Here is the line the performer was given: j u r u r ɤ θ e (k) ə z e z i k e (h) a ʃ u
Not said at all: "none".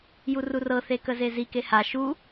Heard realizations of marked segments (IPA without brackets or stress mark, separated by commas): k, h